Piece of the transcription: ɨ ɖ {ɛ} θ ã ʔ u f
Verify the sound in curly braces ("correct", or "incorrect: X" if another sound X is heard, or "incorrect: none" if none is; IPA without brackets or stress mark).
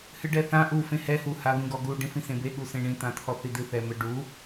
correct